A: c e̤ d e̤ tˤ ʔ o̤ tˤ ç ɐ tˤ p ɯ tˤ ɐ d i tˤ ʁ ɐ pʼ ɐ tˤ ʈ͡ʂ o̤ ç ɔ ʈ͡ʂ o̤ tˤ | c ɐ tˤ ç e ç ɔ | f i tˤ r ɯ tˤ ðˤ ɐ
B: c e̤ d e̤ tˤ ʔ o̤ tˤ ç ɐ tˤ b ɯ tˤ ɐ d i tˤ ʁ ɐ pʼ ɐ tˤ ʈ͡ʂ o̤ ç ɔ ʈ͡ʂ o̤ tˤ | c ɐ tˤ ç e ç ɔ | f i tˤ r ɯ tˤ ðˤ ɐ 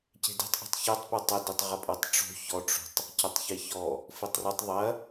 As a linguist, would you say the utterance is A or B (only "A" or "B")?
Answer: A